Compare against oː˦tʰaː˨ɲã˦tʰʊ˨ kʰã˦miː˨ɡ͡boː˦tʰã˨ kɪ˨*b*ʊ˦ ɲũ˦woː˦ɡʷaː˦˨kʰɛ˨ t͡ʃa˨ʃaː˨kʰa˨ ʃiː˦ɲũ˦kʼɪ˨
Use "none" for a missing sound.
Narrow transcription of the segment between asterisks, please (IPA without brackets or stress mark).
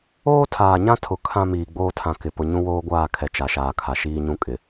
p